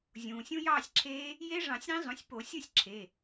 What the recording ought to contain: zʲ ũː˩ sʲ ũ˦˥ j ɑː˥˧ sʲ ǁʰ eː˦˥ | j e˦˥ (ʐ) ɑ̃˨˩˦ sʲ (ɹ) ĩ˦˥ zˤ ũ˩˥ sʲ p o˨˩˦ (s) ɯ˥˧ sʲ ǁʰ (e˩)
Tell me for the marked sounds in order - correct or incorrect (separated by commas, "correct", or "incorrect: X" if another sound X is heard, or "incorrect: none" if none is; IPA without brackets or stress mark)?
correct, incorrect: ɾ, incorrect: sʲ, incorrect: e˩˧˩